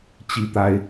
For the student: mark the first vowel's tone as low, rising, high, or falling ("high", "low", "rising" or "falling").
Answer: high